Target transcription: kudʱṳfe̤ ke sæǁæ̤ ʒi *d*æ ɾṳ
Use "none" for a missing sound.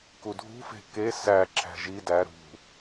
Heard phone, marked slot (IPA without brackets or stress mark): d